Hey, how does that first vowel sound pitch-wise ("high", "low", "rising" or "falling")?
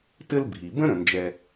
high